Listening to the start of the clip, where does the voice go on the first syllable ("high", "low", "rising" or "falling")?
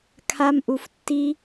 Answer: high